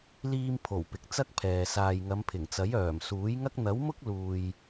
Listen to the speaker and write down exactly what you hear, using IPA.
liː˧mpʰo˨˩w pɪ˨k̚t͡sɐ˥k̚pʰɛː˨ saː˨jŋɐ˨˧mpʰɪ˨˩ŋt͡sɐ˨˥j œː˨˩msuː˨˥jŋɐ˥k̚ n̪ɐ˨˥wmʊ˥k̚luː˨j

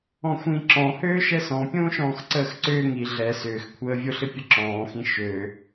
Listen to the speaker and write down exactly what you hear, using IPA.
ɔ̃xʷĩ ǁɔ̃ høːʃɛsɔ̃ pʲõːʃɔ̃ːxǀəːxǀʏː ŋi ɮɛ sʏːxkʷʰəːvʲoɬɪ pʲəǁɔ̃ːxĩ ʃø

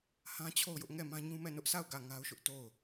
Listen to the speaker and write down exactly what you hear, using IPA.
hã˦t͡ɕʰo˦˨ʊ̯jʊ˦ʔ ŋɛ˦˨mã˦ɲũ˦mɛ˦˨ nʊ˦ʔsa˦˨ʊ̯ ɡä˦˨ŋa˦ʊ̯ʃʊ˦ʔ to˦˨ʊ̯

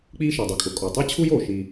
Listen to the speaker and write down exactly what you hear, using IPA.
k͡piː˦ʃɛ˩dˤi˩kʼʊ˨ kʼɔ˩tˤɛ˦ t͡ɕʰu˥joː˩ʃiː˨

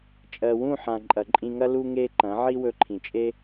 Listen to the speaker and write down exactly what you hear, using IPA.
t͡ʃʼɜ˨wũ˦˨ħã˨ ǃʼɐ˨ǃʼĩ˧ŋɐ˦ lu˦ŋe˦ǃɐ̃˨˦ ʕi˦wɵ˧ǃʰĩ˨t͡ʃʼe˦

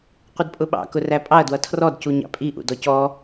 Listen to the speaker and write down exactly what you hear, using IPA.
qʷɪdpʼʊɓɑ̰ kʊræpʼɑɐ̯ dwʌtʰrɔd cuɲɑ̰pʼi ʔṵdɔcɔ

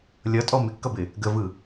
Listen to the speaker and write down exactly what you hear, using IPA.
lʲʌtʼɔ mɪkːʌbɪ | ɡəvɯ

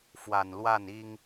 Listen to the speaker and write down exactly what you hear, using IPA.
fwa˨˩nlwa˥˩ni˥ŋ

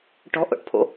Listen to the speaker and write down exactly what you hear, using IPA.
ʈɔ̤ʔo̰ʈpʰo̰

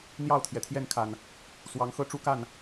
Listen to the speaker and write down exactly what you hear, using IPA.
n̪jɑ˥˨ʊ̯t̪ʰjɛ˩t̪ʰjɛ˥˨nkʰa˨˩n | swɑ˨˦ŋxɤ˦ʈ͡ʂu˦ ka˥˨n

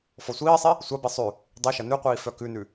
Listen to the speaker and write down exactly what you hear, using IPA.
fɔsʷiːsˤi | sʷabi sˤʉ | dˤiʃɐ nʉqʷiː fœkʉnʉ

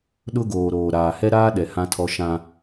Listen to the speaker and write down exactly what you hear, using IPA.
ɗʊ˦ɡoː˨ɾoː˨ ɾaː˨hɛ˦ɾaː˦ɗɛ˨ hã˦tʰɔ˦ ʃã˦

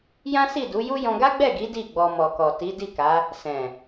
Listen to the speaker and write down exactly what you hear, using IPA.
jã˦si˦˨du˨˦ju˦ jɔ̃˧ɡa˦ɡ͡bɛ˦˨ɡi˨˦ di˦˨ɡ͡bɔ˧ mɔ˨kɔ˨ ti˨˦ di˦˨ka˨˦ | sɛ̃˨

